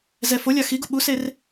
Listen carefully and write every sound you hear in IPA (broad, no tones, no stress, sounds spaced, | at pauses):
z ɛ f o lʲ a x i ɡ u ɓ u s e r